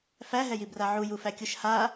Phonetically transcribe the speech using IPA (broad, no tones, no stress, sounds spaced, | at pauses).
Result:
f æ ɦ ɛ j i b r a ʕ u j u f æ kʲ u ʃ h a